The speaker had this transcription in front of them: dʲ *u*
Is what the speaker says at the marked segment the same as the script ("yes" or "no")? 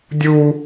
yes